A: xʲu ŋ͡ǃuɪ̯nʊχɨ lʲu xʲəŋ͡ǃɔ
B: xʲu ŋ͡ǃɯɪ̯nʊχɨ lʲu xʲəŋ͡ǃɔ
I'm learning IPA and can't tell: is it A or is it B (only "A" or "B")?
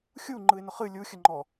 B